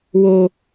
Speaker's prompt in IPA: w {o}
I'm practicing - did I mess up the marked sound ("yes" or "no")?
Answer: no